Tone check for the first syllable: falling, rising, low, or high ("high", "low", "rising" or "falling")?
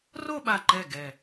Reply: falling